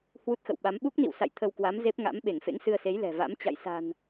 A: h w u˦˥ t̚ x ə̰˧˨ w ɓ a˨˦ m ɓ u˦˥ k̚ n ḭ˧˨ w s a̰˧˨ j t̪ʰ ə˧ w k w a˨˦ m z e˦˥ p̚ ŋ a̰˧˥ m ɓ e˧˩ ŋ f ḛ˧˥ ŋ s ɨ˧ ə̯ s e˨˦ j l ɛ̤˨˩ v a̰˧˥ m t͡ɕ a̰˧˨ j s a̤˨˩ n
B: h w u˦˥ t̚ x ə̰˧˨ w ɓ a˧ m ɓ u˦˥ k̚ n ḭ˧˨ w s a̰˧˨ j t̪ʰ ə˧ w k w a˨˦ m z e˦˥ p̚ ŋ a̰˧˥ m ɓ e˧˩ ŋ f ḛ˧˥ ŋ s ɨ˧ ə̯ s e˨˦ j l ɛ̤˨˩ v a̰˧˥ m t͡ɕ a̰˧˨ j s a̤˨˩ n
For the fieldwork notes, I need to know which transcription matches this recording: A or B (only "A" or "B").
A